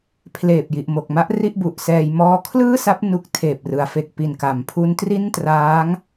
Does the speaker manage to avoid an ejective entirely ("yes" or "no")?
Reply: yes